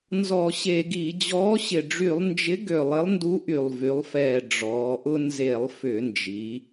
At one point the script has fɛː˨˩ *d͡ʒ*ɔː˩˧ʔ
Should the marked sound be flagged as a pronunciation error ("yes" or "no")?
yes